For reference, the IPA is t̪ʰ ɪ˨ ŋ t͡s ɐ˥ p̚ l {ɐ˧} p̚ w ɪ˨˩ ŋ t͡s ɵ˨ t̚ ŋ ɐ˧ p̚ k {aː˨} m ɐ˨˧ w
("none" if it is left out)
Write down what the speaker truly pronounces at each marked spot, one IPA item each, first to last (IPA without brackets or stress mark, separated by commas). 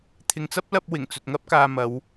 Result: ɐ˧, aː˨